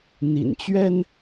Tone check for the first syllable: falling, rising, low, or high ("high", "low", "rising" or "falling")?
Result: low